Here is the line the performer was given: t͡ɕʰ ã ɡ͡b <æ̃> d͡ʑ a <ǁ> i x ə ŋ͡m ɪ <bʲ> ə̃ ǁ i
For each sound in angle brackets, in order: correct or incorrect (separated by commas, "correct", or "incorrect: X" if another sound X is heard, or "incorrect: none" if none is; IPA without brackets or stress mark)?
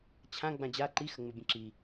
incorrect: ã, incorrect: ǃ, correct